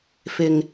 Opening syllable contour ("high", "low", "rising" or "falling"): low